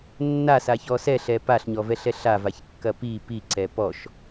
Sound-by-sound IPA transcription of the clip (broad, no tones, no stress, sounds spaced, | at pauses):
nː a s a ç ɔ s ɛ ɬ ɛ p a ɬ ɲ ɔ v ɛ ɬ ɛ ɬ a v a ç kː ɐ p i p i ǀ ɛ p ɔ ʃ